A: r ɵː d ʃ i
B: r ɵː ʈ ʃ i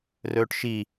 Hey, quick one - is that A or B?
B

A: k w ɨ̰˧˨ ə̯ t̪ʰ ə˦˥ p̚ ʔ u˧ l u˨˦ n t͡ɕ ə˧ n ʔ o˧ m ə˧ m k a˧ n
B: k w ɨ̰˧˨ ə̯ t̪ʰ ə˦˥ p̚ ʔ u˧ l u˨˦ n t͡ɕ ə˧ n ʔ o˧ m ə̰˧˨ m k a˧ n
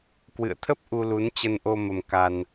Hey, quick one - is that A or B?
A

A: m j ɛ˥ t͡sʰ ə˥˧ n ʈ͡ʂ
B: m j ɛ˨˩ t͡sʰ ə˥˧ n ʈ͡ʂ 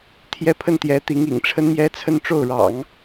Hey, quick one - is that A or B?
A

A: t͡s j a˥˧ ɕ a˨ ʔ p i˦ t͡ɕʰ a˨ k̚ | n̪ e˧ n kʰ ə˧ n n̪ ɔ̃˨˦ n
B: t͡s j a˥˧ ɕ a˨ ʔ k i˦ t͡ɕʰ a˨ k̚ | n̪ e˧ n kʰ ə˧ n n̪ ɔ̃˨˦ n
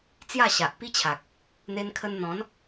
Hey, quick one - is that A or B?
A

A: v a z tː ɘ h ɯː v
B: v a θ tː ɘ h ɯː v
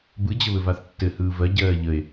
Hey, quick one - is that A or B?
B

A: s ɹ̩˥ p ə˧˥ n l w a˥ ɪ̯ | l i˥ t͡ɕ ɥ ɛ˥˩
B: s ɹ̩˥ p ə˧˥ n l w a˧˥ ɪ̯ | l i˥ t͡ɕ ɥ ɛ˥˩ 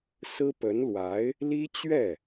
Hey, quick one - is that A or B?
B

